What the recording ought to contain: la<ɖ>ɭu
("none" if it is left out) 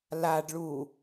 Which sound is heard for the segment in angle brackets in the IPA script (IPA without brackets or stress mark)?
ɖ